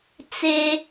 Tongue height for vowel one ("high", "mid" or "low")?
mid